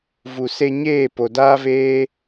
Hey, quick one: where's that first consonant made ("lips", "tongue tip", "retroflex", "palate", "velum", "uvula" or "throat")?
lips